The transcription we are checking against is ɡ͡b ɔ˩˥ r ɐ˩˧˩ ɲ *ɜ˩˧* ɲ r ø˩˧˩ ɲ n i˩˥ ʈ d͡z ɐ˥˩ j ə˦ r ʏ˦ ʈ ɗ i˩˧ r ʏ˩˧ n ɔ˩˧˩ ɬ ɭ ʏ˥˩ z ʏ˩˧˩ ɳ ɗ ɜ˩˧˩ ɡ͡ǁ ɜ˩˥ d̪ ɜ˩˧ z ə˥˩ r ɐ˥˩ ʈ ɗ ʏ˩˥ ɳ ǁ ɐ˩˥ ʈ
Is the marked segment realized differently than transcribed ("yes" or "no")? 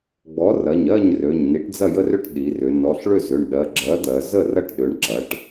yes